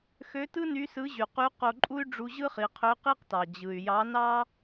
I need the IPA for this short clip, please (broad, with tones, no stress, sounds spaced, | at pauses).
x ø˧˥ t ɯ˥ n y˧˥ s ɯ˧˥ ʑ y˩ q y˧˥ q o˧ ǃʼ u˥ y̯ ɖ͡ʐ u˧ ʑ ɯ˥ χ i˩˧ qʰ ø˧˥ q i˥ q t ɑ˩ d͡ʑ ɯ˩ y̯ j ɑ˧˥ n ɑ˥